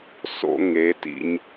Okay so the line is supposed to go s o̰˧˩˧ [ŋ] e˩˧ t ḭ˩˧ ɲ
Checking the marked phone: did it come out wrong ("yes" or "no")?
no